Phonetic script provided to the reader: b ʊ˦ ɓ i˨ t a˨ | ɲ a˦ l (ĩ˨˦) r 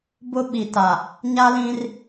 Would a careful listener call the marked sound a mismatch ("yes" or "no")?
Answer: yes